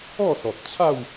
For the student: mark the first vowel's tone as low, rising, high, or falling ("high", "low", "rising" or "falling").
falling